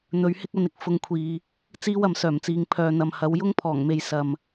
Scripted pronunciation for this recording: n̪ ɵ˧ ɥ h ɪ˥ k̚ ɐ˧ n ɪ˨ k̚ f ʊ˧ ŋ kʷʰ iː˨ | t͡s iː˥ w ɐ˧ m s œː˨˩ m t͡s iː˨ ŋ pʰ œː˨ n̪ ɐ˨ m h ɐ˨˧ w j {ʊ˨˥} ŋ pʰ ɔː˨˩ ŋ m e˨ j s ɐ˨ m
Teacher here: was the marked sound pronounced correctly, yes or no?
no